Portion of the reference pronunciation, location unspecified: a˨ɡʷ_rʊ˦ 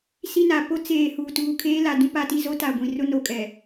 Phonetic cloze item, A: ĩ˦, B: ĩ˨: B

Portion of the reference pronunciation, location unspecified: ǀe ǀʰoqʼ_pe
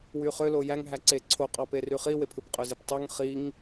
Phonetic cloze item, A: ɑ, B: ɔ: A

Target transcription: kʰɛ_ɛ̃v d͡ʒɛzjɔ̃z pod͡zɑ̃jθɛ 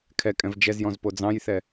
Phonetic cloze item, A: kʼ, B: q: A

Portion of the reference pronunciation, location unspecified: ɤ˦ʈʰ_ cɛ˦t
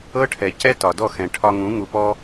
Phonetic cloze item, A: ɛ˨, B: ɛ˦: A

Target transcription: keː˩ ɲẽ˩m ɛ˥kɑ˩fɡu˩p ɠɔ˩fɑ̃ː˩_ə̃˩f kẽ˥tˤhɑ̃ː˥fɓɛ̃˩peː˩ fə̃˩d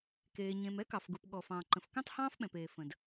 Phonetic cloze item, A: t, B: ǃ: B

